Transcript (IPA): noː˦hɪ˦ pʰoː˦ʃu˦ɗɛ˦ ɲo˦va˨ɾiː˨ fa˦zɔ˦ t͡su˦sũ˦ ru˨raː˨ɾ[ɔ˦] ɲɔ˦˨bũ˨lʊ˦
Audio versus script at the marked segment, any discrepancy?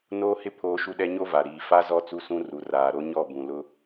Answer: yes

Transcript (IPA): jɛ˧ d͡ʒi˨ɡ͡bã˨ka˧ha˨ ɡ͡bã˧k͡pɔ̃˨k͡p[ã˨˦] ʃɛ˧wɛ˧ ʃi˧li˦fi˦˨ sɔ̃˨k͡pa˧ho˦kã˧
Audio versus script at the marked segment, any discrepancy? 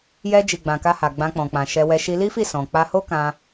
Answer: yes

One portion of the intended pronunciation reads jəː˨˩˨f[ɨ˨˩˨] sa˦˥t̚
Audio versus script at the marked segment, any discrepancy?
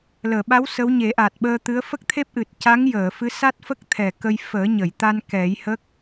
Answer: yes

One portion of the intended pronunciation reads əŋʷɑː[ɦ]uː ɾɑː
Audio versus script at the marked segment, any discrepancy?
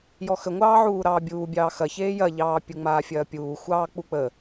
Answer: yes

